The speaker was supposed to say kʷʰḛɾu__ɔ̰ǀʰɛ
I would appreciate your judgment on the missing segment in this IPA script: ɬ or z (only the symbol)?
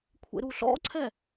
ɬ